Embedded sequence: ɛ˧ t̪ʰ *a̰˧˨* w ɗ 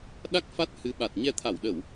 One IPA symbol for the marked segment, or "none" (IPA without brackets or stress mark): a˧˩